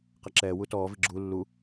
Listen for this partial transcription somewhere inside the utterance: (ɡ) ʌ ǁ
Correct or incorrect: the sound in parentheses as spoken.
incorrect: q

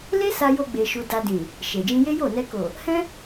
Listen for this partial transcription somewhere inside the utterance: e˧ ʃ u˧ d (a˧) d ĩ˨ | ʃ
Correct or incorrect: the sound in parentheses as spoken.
correct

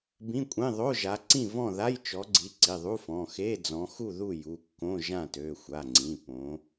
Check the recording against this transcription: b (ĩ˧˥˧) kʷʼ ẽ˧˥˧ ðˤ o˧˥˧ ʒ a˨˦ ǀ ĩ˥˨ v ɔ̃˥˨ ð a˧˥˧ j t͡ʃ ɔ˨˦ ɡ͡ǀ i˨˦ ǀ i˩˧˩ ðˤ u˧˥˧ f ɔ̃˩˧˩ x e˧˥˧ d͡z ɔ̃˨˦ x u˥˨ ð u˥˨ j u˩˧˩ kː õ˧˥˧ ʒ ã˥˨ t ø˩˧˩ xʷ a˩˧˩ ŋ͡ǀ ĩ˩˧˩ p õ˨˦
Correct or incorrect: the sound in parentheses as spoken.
correct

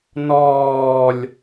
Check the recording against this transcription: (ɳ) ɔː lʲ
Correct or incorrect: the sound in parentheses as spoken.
incorrect: n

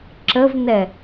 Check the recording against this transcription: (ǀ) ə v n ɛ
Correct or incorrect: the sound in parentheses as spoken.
incorrect: ǁ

